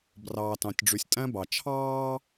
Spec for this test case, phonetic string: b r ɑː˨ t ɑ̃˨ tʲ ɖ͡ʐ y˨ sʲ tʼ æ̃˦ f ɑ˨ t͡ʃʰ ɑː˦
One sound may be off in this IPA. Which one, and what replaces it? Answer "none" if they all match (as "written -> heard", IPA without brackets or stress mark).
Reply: f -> b